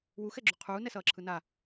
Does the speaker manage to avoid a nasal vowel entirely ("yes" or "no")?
yes